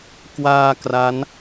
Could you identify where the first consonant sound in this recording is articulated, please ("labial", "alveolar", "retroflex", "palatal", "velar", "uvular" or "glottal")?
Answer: velar